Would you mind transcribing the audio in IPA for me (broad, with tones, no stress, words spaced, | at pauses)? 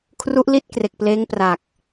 kʰru˦˥ʔli˦˥t̚ kre˨˩k̚pleː˦˥ŋ pra˨˩k̚